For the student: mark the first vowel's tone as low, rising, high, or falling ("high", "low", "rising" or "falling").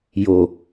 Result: low